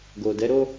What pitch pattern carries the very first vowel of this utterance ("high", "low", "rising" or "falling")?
low